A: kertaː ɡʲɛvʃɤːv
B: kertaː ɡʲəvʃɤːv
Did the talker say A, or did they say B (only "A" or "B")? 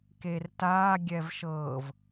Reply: A